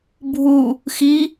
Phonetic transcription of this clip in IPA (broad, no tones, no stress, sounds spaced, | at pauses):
bʱ u | x i